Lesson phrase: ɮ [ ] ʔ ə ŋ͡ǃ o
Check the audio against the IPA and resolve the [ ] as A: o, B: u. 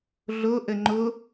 A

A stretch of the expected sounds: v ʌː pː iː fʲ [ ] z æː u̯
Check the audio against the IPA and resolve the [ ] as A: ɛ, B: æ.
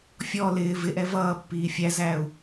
B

